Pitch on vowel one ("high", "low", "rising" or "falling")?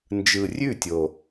low